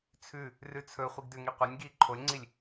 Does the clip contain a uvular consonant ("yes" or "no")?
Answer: yes